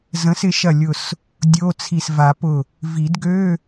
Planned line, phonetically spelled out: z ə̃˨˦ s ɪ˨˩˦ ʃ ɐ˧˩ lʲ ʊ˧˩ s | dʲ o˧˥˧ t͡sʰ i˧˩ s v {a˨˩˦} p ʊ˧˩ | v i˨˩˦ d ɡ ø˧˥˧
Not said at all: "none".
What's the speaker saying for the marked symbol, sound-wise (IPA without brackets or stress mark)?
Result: a˨˩˦